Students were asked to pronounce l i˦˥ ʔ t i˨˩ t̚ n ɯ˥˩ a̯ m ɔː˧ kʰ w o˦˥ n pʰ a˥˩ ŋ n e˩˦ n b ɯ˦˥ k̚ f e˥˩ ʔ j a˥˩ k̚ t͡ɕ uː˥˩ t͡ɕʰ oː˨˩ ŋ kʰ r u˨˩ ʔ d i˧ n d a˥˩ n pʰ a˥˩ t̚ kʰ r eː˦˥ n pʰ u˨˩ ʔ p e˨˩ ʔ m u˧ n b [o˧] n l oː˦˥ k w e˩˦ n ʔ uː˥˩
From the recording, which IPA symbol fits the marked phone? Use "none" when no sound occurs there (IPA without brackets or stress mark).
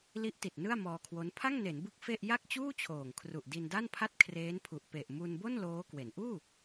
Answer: o˥˩